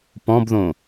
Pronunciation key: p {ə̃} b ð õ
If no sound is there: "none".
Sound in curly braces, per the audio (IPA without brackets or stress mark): ɔ̃